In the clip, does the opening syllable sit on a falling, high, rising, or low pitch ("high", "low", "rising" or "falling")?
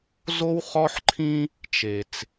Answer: high